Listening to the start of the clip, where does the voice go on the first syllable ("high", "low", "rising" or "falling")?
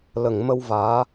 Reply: low